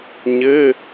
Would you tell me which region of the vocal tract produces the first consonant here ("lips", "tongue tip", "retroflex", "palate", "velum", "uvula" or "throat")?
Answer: palate